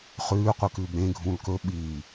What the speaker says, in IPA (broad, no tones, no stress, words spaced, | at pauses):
χʉːqʷɨkʉːb ɾẽ ɡʱũlkɵ ɓi